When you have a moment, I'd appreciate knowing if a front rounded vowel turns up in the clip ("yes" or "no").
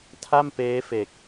no